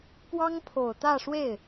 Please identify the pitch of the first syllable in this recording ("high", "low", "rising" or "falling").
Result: high